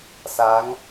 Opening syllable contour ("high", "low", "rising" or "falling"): rising